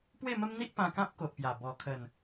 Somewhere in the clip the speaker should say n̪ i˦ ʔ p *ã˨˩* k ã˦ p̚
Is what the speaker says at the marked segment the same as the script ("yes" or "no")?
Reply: no